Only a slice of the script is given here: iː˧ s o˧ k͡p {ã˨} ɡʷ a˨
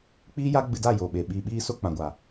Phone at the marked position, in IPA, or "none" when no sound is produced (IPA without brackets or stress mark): ã˨